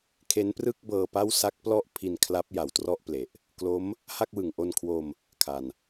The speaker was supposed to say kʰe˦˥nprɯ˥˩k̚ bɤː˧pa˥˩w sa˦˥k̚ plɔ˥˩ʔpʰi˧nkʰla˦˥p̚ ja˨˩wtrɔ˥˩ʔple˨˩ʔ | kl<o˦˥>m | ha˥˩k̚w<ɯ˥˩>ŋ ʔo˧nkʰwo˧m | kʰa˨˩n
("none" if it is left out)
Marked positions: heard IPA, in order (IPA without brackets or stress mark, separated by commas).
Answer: o˦˥, ɯ˩˦